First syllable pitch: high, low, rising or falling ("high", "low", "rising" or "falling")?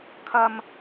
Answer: high